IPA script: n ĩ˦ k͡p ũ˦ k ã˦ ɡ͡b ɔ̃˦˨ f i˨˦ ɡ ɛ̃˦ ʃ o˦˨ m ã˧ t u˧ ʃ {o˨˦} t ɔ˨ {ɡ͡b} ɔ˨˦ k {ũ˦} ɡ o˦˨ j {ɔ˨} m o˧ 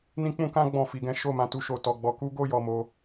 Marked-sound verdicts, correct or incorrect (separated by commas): incorrect, correct, incorrect, correct